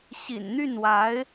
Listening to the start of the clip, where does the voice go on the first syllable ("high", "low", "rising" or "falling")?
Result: low